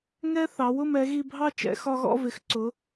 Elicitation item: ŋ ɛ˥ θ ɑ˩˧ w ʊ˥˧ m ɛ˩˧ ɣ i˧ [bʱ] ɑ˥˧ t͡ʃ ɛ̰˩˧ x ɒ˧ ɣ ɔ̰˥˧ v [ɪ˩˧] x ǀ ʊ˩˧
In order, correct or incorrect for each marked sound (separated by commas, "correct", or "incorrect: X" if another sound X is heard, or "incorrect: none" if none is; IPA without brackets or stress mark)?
correct, correct